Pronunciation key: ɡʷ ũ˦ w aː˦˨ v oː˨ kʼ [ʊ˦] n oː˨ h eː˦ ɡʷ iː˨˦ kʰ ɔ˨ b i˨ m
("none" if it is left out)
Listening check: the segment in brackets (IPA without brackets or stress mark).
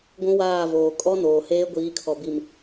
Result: ɔ˦